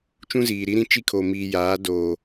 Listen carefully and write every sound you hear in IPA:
t͡ʃ ũ˦ z iː˨ ɾ i˦ ɾ ĩ˦ t͡ʃ i˦ kʰ o˨ m iː˨ j aː˨˦ d oː˨

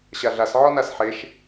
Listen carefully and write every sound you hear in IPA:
ɕ a ɮ a s ʕ ɔ n a s ħ e ʃ

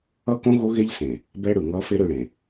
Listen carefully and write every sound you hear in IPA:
ʌ˦ k õ˦ ɣ o˦ ɣ e˦ ʎ s ẽ˨ | b ɛ˦ ɽ ɯ˨ ŋ ʌ˦ f e˦ ɾ ɯ˦˨ ɽ ẽ˨

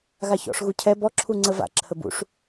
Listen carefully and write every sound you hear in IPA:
ɣ a ç ɔ̰ ʂ ɣ u cʰ ɛ b ɔ ǁʰ u ŋ͡ǀ ə v a̰ ǁʰ ə b ṵ ʂ

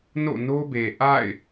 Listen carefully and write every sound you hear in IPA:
n o̰˦˨ n o˦ b e˨ ʔ a̰˦˨ ɪ̯

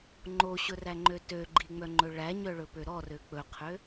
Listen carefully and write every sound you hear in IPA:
ŋ͡ǃ o ɕ ɵ r æ ŋ͡ǃ ø t ø ɡ͡ǃ i ŋ͡m œ ŋ͡ǃ ɵ ɭ æ ɲ œ ɭ ɵ p ø ɾ ɔ r ø k͡p ɵ qʰ ø

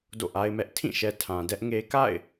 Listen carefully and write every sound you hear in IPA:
d o̰˦˨ ʔ a˦ ɪ̯ m ɛ˦ ʔ tʰ ĩ˦˨ ʃ ɛ˨ tʰ ã˨ d ɛ˦ ʔ ŋ e˦ k a̰˦˨ ɪ̯

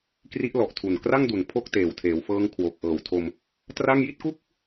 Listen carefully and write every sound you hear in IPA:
k r i˦˥ ʔ l ɔ˨˩ ʔ tʰ u˨˩ n k r a˥˩ ŋ d u˨˩ n pʰ o˥˩ k̚ t eː˨˩ w tʰ eː˩˦ w f ɤː˦˥ ŋ kʰ w o˨˩ k̚ ʔ ɤː˨˩ w tʰ o˧ m | t r a˥˩ ŋ j i˥˩ t̚ k u˥˩ k̚

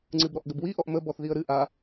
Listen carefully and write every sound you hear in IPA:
ŋ͡ǀ ɨ b ɾ ɔ ʔ ɡ ə b w i ʔ ɔ ʔ m ə b ɔ θ ð i ə̯ ɾ ɨ ʔ a

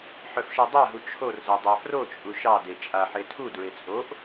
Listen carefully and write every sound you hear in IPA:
ħ œ f ʃ ɜ dˤ a ɦ u t͡ʃʰ o r z ɤ dˤ a f r o t͡ʃʼ u ʃ ɑ d e t͡ʃʼ a ħ e tʰ u d ɹ e t͡sʼ o ʔ

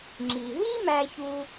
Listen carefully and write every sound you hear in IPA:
ŋ͡ǁ i˩ ɦ i˥ m æ˧ ç u˧

